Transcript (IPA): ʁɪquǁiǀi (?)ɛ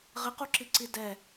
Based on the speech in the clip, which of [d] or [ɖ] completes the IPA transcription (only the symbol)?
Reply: d